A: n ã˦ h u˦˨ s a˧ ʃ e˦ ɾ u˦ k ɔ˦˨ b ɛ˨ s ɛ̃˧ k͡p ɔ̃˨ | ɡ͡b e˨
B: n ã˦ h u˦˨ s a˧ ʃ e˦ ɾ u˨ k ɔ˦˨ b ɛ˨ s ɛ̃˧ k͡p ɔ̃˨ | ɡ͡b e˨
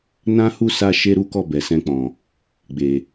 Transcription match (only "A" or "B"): A